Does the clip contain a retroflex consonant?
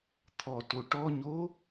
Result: yes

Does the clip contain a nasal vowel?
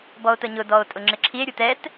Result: no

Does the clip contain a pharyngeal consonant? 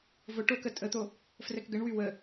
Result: no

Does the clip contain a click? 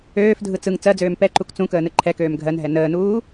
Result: yes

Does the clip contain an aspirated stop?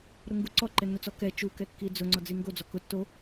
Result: no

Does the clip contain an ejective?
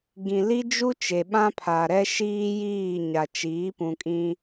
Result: yes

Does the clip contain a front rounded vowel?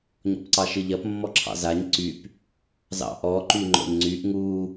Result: yes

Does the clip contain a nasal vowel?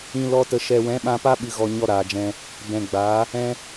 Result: yes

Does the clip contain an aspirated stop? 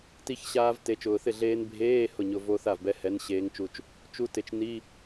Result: no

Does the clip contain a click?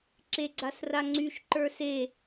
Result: yes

